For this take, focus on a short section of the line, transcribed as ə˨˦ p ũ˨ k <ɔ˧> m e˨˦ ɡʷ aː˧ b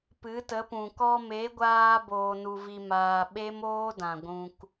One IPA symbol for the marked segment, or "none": ɔ˧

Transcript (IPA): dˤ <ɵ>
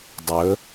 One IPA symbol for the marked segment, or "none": ɵ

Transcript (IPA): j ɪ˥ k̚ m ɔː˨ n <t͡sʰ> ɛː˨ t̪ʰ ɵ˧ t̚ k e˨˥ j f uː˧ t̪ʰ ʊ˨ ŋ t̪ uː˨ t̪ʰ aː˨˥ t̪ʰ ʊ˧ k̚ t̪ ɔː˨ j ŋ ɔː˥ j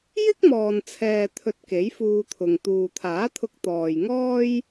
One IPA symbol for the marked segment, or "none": t͡sʰ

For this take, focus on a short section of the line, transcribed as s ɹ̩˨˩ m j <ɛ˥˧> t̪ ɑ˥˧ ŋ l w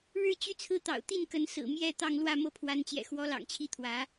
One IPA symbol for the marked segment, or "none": ɛ˥˧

